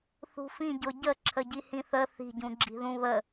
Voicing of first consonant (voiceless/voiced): voiceless